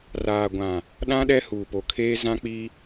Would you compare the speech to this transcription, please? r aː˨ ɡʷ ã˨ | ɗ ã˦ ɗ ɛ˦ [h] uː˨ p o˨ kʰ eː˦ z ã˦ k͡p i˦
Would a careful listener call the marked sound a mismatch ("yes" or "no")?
no